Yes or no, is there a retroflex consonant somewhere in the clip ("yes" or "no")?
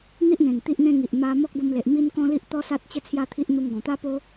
no